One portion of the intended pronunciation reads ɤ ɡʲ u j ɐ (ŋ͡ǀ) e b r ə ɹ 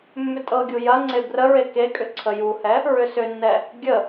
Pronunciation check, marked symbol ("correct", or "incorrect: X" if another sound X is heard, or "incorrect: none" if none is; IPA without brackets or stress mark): correct